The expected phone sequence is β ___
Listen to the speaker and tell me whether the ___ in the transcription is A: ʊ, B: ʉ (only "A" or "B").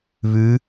B